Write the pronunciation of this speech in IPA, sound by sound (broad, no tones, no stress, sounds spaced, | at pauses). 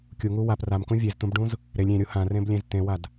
kʲ u ŋ u w a p r a m k ũ vʲ e z t̪ ũ b ɖ ũ z | ɾ e lʲ ɾʲ ẽ ɾʲ u h ã r ẽ b lʲ ẽ z t̪ ẽ w a d